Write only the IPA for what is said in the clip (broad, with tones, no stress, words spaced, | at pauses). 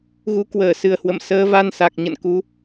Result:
ɣu˨˦kwəː˧˩ sɨ˨˩ə̯hwə̰˧˨m səː˨˦ va˧n sa˨˩k̚ɲə̰˧˨n ku˨˦